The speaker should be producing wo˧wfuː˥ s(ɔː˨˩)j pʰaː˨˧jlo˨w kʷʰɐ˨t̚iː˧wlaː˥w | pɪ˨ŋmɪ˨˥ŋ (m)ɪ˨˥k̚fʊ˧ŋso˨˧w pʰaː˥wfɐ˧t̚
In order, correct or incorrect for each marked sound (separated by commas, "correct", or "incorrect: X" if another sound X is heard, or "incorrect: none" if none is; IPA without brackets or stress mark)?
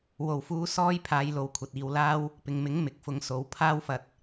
incorrect: ɔː˥, correct